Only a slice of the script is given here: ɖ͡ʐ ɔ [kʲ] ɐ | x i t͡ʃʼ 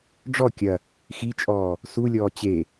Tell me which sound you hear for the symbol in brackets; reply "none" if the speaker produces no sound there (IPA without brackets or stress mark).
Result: kʲ